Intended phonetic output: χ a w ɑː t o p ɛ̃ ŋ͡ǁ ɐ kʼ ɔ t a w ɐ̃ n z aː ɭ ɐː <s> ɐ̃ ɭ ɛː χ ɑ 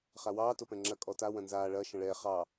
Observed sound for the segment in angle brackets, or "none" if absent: ʃ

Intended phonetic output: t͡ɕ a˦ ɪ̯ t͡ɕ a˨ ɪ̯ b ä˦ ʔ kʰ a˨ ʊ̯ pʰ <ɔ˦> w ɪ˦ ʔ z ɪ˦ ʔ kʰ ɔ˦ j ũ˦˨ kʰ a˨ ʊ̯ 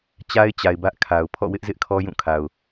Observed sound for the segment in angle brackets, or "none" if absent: ɔ̰˦˨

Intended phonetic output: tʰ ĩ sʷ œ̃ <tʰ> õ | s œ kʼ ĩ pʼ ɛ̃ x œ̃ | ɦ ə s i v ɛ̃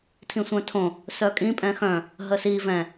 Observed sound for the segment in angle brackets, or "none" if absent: tʰ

